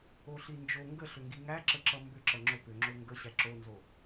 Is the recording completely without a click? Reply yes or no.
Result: no